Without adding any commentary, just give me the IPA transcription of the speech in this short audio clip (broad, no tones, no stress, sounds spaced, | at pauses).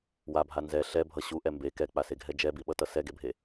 w a bʱ a n z ɛ ɬ ɛ bʱ ʌ ɕ u ʔ ɛ m b e k ɛ k͡p a s e ɡʱ ɛ d͡ʒ ɛ b i ɓ ʌ t ʌ s ɛ ɡ e bʱ e